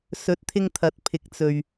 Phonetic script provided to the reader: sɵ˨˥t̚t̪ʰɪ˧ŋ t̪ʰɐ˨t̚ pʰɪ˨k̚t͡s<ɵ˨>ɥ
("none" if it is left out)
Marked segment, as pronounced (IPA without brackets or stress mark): ɵ˨